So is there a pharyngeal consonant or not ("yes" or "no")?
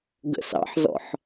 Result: yes